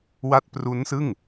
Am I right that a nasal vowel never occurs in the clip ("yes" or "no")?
yes